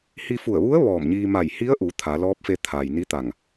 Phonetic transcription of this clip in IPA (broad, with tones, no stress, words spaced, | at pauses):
hi˧fu˧˩ə̯ʋu˧˥ə̯ ʋɔː˧˩mɲiː˧ ma˧˩jhi˧˥ə̯ʔu˩˧ t̪ʰa˩˧ lɔː˧˥p̚fe˧ t̪ʰaː˩jni˧˥t̪a˧˩ŋ